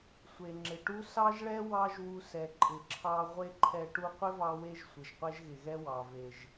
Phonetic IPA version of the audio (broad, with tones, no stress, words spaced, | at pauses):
sʷe˨ŋ͡ǁɪ˨ʈu˦ sɑ˦ʒɭɛ˦ wɑ˦ʒwu˧sɛ˨ ǃʼɪ˨ǁʰɑ˧ ʁʷe˦ǃʰɛ˧ ʈu˧qʷɪ˦vɑ˧we˧ʒ sʷɪ˨ʒqʷɛ˦ʒɣɪ˨ɣɛ˦ wɑ˨ve˨ʒ